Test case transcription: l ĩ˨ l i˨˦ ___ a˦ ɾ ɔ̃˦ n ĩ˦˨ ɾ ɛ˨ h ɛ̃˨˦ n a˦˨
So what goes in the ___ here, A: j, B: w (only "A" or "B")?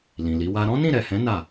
B